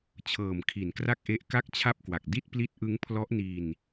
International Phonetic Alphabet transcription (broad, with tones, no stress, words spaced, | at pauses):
t͡ɕʰɤː˨˩mkʰi˩˦nkra˥˩k̚ʔe˦˥ʔ ka˥˩k̚t͡ɕʰa˥˩p̚kwa˨˩k̚ di˥˩t̚ pli˦˥t̚ʔɯ˦˥ŋ pʰlɔ˦˥ʔni˧n